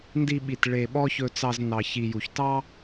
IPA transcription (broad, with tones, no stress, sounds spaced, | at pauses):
n d i˧ ɓ i˨ t ɭ e˨ ɓ ɔ˦ ç ɵ˧ t͡s ɑ˧ z n ɑ˨ ç i˨ j u˨ ç t ɑ˦